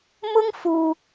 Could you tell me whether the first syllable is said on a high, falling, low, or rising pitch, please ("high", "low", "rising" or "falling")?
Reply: high